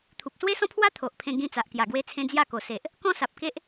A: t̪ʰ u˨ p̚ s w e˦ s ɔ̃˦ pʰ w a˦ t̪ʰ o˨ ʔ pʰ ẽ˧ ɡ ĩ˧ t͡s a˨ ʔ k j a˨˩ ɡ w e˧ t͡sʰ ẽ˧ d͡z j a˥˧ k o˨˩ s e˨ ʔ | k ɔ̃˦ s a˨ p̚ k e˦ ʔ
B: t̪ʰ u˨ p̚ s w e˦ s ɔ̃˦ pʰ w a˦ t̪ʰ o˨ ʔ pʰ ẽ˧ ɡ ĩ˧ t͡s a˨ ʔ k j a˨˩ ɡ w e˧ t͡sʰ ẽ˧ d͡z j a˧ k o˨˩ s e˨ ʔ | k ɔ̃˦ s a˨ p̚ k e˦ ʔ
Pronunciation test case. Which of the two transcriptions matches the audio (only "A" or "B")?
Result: A